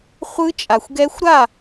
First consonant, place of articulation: uvular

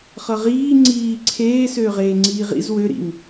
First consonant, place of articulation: uvular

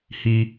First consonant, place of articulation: glottal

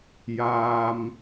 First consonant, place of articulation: palatal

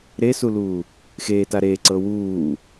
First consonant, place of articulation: alveolar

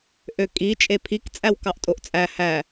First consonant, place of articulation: glottal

